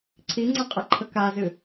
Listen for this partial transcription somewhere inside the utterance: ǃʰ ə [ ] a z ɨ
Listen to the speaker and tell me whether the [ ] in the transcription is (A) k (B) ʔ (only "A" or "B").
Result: A